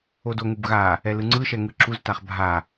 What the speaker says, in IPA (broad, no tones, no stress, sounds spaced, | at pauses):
o d o ŋ u b ɣ a | ɛ l ɯ ŋ͡ǀ ɯ ʃ ɛ ŋ ɯ ǁ u z t a χ bʱ a